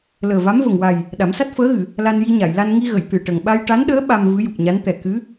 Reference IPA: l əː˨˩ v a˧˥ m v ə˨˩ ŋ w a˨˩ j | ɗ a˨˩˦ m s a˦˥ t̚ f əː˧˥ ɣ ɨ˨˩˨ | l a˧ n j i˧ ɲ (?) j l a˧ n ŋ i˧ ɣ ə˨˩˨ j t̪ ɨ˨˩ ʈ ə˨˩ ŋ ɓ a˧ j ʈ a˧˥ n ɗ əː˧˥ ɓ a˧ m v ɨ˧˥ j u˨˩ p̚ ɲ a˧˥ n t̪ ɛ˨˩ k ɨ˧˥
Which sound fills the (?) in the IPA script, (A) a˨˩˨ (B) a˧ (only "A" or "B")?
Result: A